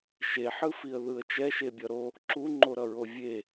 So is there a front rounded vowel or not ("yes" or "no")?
no